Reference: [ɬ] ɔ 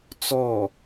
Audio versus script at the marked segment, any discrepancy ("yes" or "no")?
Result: yes